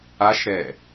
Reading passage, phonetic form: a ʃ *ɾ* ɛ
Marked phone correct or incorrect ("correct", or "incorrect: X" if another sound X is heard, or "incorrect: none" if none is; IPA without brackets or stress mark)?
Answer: correct